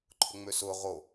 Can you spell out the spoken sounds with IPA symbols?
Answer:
ǃʰ ʊ ŋ͡m ø s ʊ ʁ o

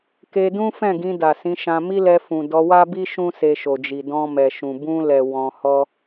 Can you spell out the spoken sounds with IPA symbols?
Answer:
k e˧ d ũ˦ f ɛ̃˦˨ ɡ ĩ˧ d a˨ s ĩ˨˦ ʃ ã˧ m i˦ l ɛ˧ f ũ˨ d ɔ˧ w a˦ b i˦ ʃ ũ˦ s e˧ ʃ o˨ d͡ʒ i˨ d ɔ̃˧ m ɛ˨ ʃ ũ˨ b ũ˧ l ɛ˨ w ɔ̃˧ h ɔ˧

